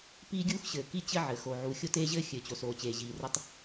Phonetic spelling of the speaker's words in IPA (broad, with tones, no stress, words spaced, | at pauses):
piː˥ɡʲuː˥xɕɘː˩ ki˥t͡ɕɘ˥ʕɘ˩ xo˩ ʕu˩ xʲo˥teː˥ʑɘː˥ xʲɘː˩t͡ɕo˩soː˩ t͡ɕeː˩ʑiː˩rɘ˥tˤ